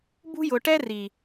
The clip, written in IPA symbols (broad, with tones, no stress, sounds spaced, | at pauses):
b ṳ˧ j ʊ˨ ʈ ɛ˧ r i˨